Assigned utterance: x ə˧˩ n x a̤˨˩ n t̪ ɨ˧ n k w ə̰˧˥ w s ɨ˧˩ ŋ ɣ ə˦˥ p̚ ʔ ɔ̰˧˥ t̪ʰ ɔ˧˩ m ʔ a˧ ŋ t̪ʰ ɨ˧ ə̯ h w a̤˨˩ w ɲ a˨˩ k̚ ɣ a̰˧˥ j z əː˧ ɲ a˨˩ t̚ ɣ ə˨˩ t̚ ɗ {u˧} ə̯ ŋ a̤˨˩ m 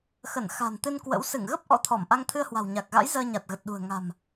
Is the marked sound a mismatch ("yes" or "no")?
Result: yes